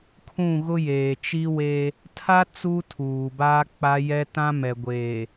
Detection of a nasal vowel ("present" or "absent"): present